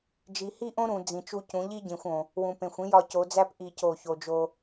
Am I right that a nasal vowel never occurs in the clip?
no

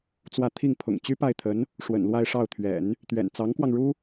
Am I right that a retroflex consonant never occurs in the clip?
no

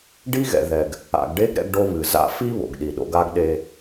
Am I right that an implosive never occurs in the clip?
no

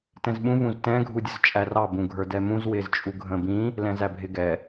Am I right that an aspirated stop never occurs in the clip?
yes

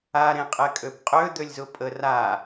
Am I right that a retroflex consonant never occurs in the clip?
yes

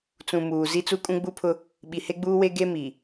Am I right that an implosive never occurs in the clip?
no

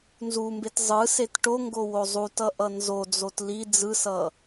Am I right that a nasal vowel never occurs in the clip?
yes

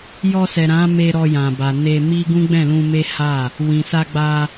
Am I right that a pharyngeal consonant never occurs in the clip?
yes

